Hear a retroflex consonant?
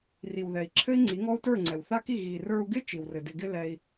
no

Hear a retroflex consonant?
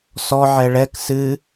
yes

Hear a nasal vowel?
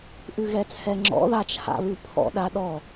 no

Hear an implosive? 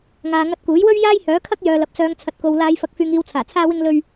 no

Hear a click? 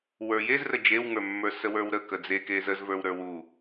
no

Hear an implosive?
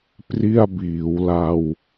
no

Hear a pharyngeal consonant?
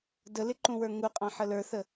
yes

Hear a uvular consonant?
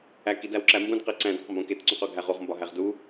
yes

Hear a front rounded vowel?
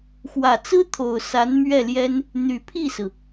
yes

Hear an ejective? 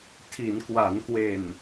no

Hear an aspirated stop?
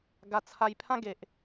yes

